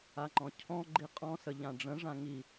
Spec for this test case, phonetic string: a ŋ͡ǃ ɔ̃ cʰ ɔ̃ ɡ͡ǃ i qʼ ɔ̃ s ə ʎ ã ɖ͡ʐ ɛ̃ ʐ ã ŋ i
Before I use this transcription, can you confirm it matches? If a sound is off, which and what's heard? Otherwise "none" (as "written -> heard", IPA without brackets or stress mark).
ɛ̃ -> ə̃